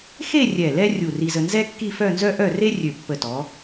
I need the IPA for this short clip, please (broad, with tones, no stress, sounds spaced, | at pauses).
x e˥˧ rʲ ɛ˧˩ l ɛ˥ rʲ u˧˩ r i˧ z ə˧ n z ɛ˥ kː i˥˧ f œ˥˧ n z œ˥ ʔ œ˥˧ r e˥ rʲ ø˧˩ pː ə˧˩ t ɔ˩˧